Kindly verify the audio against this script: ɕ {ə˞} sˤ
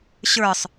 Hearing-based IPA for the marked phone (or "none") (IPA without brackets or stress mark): ə˞